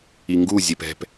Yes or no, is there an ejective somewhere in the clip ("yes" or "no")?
no